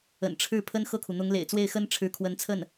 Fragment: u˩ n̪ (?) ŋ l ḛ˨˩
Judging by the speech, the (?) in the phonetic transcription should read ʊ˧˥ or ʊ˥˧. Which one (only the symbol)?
ʊ˧˥